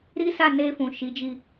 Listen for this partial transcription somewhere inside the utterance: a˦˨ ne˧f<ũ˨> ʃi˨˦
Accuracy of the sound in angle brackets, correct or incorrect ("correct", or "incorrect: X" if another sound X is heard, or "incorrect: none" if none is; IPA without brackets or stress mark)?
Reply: correct